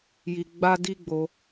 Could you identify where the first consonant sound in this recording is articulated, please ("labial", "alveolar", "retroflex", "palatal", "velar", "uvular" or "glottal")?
palatal